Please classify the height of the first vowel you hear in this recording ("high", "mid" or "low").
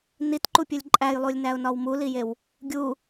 high